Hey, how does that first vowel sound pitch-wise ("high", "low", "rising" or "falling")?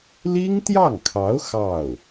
high